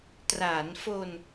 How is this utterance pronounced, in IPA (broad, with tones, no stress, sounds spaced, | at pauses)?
t r aː˩˦ n f o˧ n